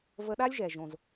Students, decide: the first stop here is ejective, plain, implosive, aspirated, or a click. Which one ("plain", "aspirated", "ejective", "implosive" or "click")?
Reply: implosive